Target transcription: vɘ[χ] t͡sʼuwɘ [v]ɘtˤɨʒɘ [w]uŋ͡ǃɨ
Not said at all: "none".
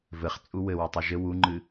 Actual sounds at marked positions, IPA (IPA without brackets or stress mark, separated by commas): χ, w, w